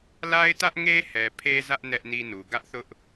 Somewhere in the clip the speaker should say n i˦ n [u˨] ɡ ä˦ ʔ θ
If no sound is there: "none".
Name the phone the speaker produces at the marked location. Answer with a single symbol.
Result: u˨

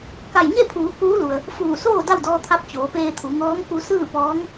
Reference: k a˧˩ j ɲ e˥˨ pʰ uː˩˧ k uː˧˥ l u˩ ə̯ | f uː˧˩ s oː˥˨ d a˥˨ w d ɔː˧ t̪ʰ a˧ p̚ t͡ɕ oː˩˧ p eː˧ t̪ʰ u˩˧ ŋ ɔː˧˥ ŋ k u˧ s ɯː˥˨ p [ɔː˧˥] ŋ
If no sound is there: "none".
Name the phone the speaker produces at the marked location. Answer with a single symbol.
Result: ɔː˧˥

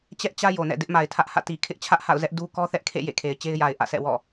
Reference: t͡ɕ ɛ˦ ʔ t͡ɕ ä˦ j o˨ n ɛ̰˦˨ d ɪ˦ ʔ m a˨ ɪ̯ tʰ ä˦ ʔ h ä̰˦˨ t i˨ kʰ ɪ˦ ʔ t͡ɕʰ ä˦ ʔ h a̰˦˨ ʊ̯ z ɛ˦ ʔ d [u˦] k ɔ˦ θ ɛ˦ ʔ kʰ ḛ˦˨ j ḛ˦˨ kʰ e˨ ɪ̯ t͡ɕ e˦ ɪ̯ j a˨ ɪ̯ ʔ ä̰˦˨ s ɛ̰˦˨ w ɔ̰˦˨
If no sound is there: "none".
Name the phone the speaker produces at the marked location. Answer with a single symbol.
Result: u˦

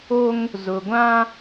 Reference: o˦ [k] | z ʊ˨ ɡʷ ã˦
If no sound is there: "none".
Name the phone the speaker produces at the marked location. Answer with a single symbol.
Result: ŋ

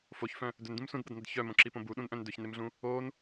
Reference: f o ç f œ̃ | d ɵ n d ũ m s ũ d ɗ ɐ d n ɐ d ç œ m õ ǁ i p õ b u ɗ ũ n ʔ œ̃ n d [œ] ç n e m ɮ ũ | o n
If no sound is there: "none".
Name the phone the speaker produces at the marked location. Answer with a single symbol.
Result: ɵ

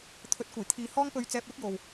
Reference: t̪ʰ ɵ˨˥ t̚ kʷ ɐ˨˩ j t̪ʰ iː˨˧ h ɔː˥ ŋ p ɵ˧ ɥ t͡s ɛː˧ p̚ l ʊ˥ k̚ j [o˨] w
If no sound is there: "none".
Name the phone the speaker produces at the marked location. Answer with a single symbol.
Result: o˨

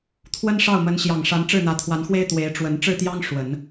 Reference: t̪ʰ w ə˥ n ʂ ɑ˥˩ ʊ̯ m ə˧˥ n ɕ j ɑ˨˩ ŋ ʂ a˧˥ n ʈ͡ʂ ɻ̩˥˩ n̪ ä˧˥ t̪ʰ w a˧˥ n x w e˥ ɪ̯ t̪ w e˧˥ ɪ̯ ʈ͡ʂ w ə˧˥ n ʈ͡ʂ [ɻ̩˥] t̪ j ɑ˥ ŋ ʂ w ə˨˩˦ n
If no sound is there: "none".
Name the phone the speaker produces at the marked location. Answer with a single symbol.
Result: ɻ̩˥˩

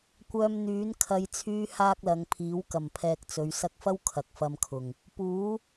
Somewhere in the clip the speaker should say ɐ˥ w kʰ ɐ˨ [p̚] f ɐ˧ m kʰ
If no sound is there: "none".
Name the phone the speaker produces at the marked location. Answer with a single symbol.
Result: k̚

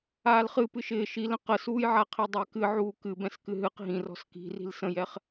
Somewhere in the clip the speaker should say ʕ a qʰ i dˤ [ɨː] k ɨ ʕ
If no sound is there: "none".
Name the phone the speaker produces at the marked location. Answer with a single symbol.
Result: ɪː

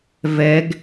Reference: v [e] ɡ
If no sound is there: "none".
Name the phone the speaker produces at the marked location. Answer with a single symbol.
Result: ɛ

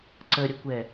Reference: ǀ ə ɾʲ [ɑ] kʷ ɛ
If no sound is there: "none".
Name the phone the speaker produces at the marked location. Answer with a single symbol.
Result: ə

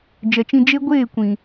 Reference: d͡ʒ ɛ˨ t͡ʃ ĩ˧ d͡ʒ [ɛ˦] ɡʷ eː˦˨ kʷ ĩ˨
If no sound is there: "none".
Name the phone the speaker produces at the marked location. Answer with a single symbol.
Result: e˦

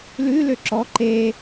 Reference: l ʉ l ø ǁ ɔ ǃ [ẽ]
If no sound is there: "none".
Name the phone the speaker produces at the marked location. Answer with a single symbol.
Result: e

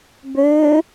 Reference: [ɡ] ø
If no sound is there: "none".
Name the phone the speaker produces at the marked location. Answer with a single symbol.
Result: b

